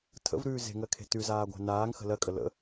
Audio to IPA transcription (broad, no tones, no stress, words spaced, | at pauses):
tʰə̰vɾʉː ze̤ŋɜkʰe̤ tʉzaːɡʷæ̤ naːŋxə̤ lɜkʼə lə̰